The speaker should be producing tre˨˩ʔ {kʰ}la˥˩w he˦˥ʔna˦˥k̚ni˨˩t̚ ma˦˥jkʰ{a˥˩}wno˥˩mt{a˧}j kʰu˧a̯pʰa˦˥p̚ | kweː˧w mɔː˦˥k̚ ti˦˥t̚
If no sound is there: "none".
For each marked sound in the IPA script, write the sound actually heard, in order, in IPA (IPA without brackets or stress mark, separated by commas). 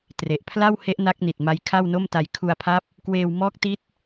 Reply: pʰ, a˥˩, a˧